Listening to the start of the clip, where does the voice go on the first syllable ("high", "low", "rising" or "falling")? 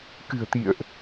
low